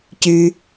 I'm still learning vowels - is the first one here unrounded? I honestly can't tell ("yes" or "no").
no